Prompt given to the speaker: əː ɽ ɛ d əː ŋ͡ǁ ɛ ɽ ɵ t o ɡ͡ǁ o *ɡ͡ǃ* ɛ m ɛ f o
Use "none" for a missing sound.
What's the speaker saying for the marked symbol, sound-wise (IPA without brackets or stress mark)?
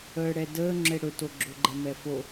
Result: ɡ͡ǃ